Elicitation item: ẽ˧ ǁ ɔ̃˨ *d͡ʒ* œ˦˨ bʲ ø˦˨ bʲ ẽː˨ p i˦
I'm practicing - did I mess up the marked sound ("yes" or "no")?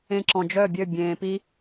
no